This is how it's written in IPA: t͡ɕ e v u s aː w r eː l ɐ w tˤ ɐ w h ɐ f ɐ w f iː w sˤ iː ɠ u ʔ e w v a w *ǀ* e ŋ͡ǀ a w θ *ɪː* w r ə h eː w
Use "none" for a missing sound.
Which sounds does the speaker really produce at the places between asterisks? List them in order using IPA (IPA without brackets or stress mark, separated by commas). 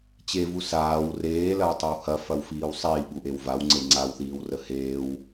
ŋ͡ǀ, iː